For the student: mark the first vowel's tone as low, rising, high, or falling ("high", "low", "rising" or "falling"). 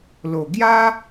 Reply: low